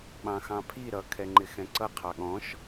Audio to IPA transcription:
ɓ ɑ̃ x ɑ̃ pʰ i ɾ ʌ kʰ ɛ ŋ͡ǃ ɪ x ɛ̃ ǀ ʌ qʰ ɑ ɠ ɔ̃ ʃ

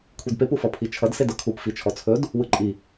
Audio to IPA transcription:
kʷʰ i d p e p u f ʌ pʰ i t͡ʃʰ ʌ d s e d ʌ kʰ u p f i t͡ʃʰ ɔ t͡sʰ ɵ d | w ɯ ǃʼ i

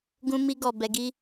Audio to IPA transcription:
ɡ ũ˦ m i˦ ɡ ɔ˦˨ b ɛ˧ ɡ i˦

